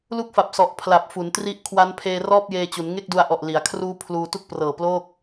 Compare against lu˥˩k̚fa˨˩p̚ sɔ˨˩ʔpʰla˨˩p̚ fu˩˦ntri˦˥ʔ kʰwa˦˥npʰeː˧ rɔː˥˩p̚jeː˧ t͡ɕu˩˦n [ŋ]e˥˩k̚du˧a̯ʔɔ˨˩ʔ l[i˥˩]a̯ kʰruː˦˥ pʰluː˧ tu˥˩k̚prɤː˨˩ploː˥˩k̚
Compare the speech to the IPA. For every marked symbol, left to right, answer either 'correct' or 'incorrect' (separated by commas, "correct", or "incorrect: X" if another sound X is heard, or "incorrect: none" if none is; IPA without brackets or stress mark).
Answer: correct, incorrect: i˩˦